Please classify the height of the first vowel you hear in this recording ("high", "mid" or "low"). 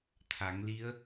low